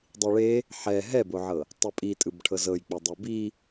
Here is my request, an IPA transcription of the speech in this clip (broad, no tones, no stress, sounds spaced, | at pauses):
dˤ i ɭ e | ħ ɛ ɦ ɛ b o ʕ ɤ | tˤ ə pʼ i tʼ ɯ b ʈʰ ɤ z ɤ j k͡p ɛ dˤ ɛ b i